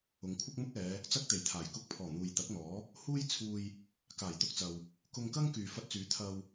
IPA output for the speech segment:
ʊ˨˧ ŋ kʷʰ ɐ˥ k̚ m ʊ˥ k̚ ɛː˨˧ | t͡s ɐ˥ k̚ t̪ e˨˩ j t̪ʰ aː˨˩ j k ʊ˧ k̚ pʰ ɔː˨˩ n̪ uː˨ j t̪ ɐ˨˥ k̚ n̪ ɔː˨˥ | h uː˥ j t͡sʰ uː˧ j | k aː˨˩ j t̪ ʊ˧ k̚ t͡s ɐ˨ w | k ʊ˧ ŋ k ɐ˥ ŋ k yː˨ f ɐ˧ t̚ t͡s yː˨˥ t̪ʰ ɐ˧ w

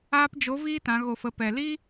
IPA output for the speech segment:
aː˧ p d͡ʒ o˨˦ v iː˧ t ã˨˦ ɣ o˨ f ə˨ p ɛ˨ l i˦

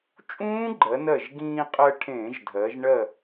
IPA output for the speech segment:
t͡ʃʼ ũː˦˥ ɡ͡ǃ ɜ˩˧ n ɜ˧˩ ʒ ɡ ĩː˧ qʼ ɜ˧ ʈʰ ẽː˧˩˧ ʒ dʱ ɜ˩˧ ʒ ɳ ɜ˧˩

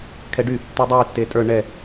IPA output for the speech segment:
kʰ ɛ ɖ y | t̪ u dˤ y tː e tʼ ə˞ ɳ ɛ

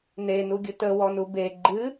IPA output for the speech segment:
n e n u ɡʲ ɨ t ə w ɔ n u b e ɡ͡ǃ ɨ

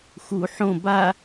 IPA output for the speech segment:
x u ħ õ b a

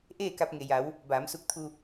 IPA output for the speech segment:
ʔ eː˥˨ k a˧ p̚ ŋ e˩ j a˩˧ w | b aː˩˧ m s u˧ k̚ t̪ʰ u˥˨

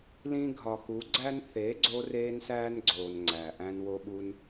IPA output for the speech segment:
l ĩ˦ ɡʱ ɒ˨ x u˨˦ ɡ͡ǀ æ˦ n θ e˨˦ ɡ͡ǀ o˦ r eː˦ n s æː˦ n ɡ͡ǀ oː˨ n ŋ͡ǀ æ˨ ʔ æ̃˧ n w o˦ ɓ u˦ n

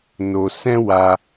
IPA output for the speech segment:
n o˧ s ɛ̃˦ w a˧

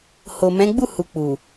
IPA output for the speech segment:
h o˨ m ɛ̃˨˦ ɡ͡b u˦˨ h u˨ k͡p u˨

